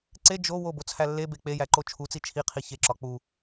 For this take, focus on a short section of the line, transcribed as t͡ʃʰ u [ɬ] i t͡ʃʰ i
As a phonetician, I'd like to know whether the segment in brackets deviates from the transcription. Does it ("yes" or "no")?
yes